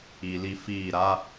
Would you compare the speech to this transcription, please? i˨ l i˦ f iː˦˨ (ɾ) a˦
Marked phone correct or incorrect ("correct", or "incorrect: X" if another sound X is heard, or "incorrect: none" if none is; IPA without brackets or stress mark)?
correct